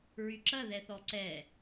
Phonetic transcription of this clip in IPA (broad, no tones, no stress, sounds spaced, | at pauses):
ɹ y ǁ ɐ ð ɛ θ ɔ ǀ ɛ